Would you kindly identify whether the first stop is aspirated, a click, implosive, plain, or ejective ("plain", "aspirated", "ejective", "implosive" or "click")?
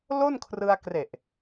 aspirated